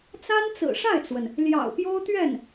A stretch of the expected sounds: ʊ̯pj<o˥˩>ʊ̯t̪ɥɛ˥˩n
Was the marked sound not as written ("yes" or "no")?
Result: yes